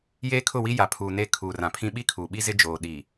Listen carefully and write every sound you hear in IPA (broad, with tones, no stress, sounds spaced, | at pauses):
j eː˦ kʰ ʊ˦˨ w i˦ j a˨ pʰ uː˨ n e˦˨ kʰ uː˨ r ã˨ pʰ ĩ˦ ɓ i˦ kʰ uː˨ ɓ i˦ z ɪ˦ d͡ʒ oː˨ ɗ i˨